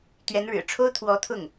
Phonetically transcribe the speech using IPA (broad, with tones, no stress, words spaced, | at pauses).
t̪ɥɛ˧˥nɻɻ̩˨˩ʈ͡ʂʰo˥ʊ̯ t̪ʰwɔ˧˥t̪ʰʊ˥˩ŋ